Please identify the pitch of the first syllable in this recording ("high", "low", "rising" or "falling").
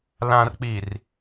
low